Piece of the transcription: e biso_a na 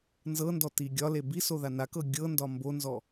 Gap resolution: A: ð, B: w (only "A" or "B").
A